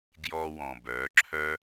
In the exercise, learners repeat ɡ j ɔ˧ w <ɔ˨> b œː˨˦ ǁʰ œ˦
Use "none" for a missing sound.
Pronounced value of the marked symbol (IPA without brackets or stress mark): ɔ̃˨